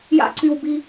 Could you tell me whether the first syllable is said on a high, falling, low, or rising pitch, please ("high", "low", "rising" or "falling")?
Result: low